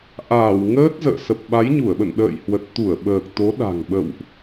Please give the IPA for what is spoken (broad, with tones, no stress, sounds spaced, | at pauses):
ʔ aː˧˩ w ŋ əː˦˥ t̚ z ə̰ː˧˨ s ə˨˩ p̚ ɓ a˨˦ j ɲ u˧˩ ə̯ ɓ ə̰˧˨ n ɗ ə̰ː˧˨ j h w ə˨˩ t̚ t̪ u˧˩ ə̯ ɓ əː˨˩ k̚ t̪ o˨˦ ɗ a̤˨˩ ŋ ɓ ə̰˧˨ w ʔ